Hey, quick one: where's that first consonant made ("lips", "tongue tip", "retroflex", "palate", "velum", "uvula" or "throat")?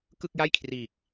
velum